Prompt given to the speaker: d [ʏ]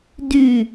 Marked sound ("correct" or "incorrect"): incorrect